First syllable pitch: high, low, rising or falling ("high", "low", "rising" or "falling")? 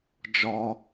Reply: high